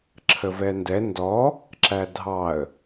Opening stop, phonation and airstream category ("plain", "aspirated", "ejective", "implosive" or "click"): click